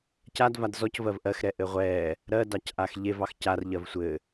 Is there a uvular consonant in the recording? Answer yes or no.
yes